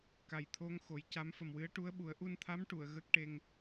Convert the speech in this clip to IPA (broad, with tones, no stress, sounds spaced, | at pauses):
k a˨˩ j t̪ʰ o˧ ŋ x o˨˩˦ j c a˧˥ m f ə˨˩ m w ɨ˧˥ ə̯ ʈ u˧˥ ə̯ ɓ u˨˩˦ ə̯ ʔ u˧ n t̪ʰ a˧˥ m ʈ u˨˩˨ ə̯ ɣ ə˦˥ k̚ ʈ e˧ ŋ